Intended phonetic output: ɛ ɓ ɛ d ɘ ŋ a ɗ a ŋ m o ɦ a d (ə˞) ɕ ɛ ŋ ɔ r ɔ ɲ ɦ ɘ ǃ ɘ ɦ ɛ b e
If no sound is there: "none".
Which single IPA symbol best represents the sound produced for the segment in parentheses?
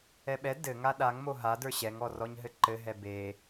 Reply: ə˞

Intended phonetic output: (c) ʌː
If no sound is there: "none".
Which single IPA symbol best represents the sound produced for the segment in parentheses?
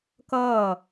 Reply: k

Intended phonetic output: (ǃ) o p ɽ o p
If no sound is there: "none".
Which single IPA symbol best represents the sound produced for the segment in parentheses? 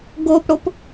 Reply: ɡ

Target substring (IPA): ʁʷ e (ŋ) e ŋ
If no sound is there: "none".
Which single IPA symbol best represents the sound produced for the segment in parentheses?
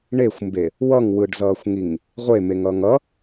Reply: m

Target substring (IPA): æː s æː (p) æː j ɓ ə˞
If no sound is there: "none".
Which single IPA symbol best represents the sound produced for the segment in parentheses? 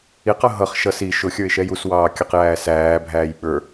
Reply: bʱ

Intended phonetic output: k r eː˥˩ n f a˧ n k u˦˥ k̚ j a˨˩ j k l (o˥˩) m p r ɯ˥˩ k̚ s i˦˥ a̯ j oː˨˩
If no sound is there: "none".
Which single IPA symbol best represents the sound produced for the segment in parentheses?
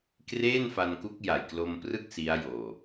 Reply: o˧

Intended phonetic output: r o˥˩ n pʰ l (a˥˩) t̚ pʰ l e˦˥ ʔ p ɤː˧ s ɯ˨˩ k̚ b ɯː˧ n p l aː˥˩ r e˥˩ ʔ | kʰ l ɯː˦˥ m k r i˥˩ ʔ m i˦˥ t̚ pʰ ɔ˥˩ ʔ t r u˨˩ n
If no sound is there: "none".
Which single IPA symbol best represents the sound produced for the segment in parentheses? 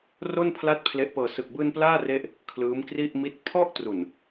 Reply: a˥˩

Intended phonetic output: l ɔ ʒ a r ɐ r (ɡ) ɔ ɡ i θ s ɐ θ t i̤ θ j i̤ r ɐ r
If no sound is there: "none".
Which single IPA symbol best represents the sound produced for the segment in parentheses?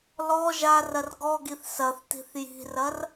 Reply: ɡ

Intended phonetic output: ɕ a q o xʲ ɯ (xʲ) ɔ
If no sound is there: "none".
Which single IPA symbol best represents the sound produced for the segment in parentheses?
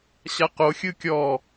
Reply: kʲ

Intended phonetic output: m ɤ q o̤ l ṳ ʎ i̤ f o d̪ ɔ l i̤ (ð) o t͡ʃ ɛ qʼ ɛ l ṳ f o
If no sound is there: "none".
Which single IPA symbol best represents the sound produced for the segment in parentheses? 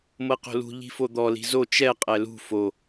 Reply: z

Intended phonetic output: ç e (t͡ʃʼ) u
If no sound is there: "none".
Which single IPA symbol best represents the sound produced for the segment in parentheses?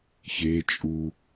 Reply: t͡ʃʼ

